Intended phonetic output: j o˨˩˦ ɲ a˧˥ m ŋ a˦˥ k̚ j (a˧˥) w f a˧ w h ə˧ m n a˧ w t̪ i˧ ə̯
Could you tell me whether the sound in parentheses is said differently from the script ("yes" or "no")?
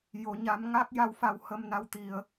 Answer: no